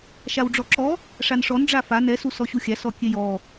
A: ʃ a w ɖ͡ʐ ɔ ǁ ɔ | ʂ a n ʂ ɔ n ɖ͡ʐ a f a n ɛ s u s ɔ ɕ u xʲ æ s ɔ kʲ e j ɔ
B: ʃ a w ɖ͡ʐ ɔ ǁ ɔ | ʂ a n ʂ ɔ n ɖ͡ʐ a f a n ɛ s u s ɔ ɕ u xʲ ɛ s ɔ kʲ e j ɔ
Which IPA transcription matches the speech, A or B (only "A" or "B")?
A